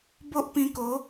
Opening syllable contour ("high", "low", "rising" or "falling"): high